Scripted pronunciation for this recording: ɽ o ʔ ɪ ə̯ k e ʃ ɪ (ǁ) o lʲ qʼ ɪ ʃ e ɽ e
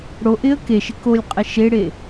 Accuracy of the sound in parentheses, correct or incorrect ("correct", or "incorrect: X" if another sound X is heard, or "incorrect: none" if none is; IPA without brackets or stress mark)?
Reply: incorrect: k